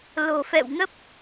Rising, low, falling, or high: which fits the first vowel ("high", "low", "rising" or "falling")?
low